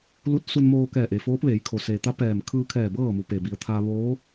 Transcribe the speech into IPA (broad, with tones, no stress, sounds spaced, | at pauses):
l u˧˥ t̚ s u˧ n m oː˧ k ɛː˧˩ ʔ e˩ f oː˧˥ p̚ ʋ eː˩˧ j kʰ o˩ s e˩ t̪ a˧˥ p ɛː˧˩ m kʰ ɯː˧ kʰ ɛː˧˩ b ɤː˥˨ m u˩˧ p e˩ b i˩˧ ə̯ t̪ʰ a˧ ʋ oː˧˥